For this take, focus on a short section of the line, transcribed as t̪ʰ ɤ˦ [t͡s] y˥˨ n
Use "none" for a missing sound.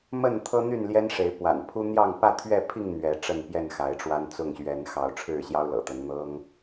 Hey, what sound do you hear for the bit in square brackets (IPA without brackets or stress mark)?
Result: n̪